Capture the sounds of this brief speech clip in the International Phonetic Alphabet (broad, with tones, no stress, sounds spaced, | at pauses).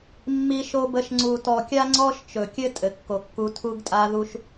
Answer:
mː i˧ ʃ o˧ b ə˧ ʃ ŋ͡ǀ u˨ t ɔ˨ kʲ a˦ ŋ͡ǀ ɔ˦ ʃ t͡ʃ ɵ˨ kʲ ɘ˦ tʼ ɘ˨ kː o˨ kː u˧ tʰ u˦ ɡ tʼ a˦ ð u˦ ʃ